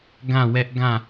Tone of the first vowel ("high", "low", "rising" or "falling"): falling